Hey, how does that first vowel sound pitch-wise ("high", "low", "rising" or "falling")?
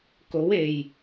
rising